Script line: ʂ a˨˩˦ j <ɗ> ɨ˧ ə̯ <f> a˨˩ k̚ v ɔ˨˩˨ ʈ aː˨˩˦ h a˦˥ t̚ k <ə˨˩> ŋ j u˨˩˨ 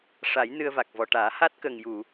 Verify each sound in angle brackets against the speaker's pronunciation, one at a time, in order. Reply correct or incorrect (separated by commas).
incorrect, incorrect, correct